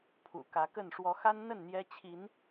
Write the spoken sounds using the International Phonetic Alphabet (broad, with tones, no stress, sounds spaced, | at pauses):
pʰ ṵ˨˩ k ä˨˦ k ə˥˨ n ʂ w ɔ˨˦ x a˦ n n̪ ə˥˨ n n̪ j ɛ˦ t͡ɕʰ i˨˦ n